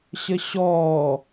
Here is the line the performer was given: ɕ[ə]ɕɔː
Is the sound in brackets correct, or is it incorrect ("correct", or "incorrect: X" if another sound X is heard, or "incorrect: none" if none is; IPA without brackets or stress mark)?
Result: correct